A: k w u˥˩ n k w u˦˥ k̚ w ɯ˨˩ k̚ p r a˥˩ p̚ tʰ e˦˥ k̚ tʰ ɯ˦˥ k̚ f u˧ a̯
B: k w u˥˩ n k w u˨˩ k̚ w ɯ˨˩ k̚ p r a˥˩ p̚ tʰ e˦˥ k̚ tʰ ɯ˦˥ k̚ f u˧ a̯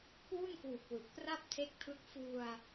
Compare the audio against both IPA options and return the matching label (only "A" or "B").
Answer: B